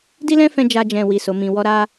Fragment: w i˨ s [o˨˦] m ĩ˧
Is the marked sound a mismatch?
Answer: no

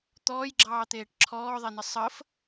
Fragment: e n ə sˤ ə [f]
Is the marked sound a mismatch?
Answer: no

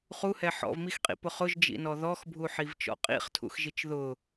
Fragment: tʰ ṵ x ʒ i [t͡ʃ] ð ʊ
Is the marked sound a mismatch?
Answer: no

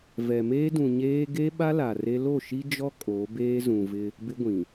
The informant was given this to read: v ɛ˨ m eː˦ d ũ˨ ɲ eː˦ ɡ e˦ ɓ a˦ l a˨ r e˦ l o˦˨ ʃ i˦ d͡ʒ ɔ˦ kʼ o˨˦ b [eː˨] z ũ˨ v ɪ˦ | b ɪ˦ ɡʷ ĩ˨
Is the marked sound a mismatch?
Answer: yes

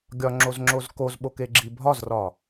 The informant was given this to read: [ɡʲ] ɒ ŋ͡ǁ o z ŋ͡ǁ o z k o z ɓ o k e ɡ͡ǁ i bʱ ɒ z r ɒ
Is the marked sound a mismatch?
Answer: no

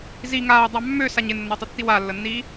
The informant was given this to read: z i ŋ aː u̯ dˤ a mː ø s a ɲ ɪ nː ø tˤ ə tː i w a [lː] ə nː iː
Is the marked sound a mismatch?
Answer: no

